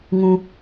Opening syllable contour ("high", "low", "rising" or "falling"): high